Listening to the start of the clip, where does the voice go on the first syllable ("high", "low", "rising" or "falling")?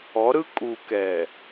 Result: rising